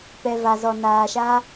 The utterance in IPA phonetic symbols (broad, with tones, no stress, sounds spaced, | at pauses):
p ɛ˨ v a˨ z ɔ˨ n aː˨ ʃ a˧